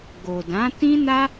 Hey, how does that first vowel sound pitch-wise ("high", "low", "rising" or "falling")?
low